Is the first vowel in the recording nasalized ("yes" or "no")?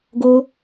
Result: no